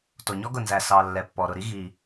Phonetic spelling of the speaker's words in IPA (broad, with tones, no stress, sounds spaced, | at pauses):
t o˩ ɲ ɔ˥ ɡ ʊ˩ n z æ˩ s ɑ˩ lː ɛ˩ pː ɔ˩ ɾ ʊ˩ ɾ i˥ ɣ i˩